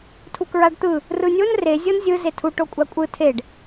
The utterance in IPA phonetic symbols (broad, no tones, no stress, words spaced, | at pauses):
tʰukɹaɖt̪ɯ | rɯnʲon rezʲɤn zʲɯ zetʰu ʈokʷʼakʷʼɯ tʰeɖ